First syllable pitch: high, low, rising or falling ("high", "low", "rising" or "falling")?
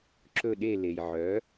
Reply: falling